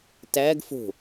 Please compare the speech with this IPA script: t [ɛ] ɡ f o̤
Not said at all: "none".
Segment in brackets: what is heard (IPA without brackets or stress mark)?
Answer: æ